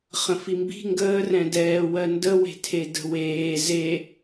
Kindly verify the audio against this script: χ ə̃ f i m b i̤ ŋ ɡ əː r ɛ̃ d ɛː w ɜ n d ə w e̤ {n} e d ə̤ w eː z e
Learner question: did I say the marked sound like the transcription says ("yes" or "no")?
no